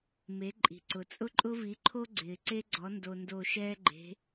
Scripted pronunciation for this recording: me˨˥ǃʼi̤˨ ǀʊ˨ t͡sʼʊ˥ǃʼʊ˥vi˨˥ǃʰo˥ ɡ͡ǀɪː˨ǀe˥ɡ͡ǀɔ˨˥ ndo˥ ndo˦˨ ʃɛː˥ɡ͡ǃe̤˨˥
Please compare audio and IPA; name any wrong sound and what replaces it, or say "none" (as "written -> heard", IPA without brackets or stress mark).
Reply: none